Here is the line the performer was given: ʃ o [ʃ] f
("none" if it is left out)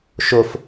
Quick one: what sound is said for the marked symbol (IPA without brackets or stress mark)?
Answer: none